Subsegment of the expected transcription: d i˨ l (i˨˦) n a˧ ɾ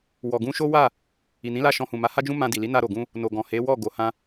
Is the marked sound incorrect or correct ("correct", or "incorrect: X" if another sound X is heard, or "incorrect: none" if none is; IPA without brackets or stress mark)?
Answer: correct